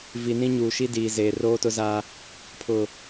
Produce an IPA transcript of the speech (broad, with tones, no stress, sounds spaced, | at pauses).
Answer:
v i˨ n ĩ˦ ɲ uː˨ ʃ i˦ d iː˨ z eː˨ r oː˦ t ʊ˦ z aː˦ | pʰ ʊ˨